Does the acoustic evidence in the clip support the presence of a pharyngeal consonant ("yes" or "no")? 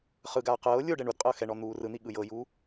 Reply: no